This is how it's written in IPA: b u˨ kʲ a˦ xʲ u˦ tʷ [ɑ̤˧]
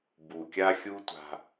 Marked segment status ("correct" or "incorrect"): incorrect